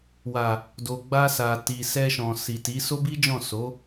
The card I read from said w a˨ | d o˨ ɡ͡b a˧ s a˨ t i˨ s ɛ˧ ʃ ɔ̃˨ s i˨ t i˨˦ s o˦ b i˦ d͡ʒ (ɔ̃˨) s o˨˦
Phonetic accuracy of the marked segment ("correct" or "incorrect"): incorrect